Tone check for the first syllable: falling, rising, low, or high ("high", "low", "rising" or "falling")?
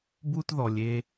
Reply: high